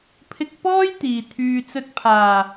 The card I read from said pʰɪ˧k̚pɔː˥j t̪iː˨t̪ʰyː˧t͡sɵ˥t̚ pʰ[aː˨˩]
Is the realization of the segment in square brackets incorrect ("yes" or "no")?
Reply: no